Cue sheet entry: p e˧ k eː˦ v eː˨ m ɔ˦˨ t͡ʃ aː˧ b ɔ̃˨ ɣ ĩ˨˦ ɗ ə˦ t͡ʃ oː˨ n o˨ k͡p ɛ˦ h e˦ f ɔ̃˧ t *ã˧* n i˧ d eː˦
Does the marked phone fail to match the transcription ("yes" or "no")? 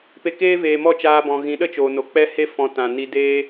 yes